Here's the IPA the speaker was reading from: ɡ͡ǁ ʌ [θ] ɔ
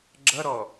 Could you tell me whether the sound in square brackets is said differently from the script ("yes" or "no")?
yes